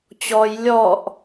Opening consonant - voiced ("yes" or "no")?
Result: no